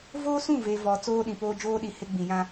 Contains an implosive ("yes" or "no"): yes